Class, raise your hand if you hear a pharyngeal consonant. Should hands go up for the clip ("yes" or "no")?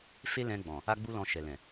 no